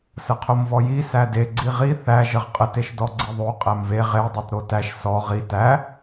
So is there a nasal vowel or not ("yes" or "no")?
no